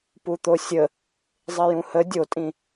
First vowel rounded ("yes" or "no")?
yes